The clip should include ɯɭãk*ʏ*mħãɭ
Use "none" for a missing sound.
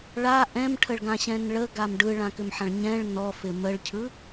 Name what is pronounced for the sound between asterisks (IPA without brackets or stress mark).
ʏ